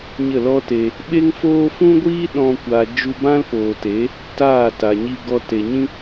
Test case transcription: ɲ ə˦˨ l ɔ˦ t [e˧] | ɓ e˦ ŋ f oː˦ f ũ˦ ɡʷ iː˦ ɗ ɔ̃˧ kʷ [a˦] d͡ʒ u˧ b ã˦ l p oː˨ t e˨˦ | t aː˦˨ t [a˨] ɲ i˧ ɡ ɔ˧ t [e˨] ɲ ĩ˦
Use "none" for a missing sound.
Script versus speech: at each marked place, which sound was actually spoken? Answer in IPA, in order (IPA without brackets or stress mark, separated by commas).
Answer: e˧, a˨, a˨, e˨